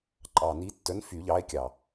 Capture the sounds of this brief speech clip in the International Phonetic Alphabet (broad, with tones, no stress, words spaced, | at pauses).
ǃʼɑ˨˩ni˨˥tːœ˨˥n fy˨˩˦ʎɑ˨˥e̯kʲɑ˨˩